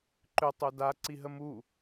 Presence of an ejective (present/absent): absent